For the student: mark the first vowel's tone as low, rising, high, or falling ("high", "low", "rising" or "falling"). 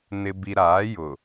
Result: low